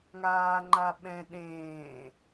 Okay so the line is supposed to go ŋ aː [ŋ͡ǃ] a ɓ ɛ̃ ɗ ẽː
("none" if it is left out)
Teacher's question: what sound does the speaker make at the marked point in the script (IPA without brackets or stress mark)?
ŋ͡ǃ